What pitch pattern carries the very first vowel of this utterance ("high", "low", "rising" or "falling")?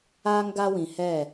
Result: high